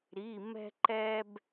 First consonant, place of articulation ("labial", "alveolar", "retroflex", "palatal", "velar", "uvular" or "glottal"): alveolar